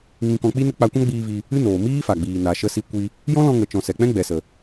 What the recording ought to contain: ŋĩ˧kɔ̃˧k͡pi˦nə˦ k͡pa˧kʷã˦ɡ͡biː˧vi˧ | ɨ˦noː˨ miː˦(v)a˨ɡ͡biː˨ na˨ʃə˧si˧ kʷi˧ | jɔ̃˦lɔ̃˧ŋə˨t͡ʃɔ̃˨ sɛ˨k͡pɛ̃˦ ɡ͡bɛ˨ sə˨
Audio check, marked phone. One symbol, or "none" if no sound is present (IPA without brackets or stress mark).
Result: f